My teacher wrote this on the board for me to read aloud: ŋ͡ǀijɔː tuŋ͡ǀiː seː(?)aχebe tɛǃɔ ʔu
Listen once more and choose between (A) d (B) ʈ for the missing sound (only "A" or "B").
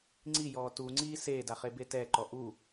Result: A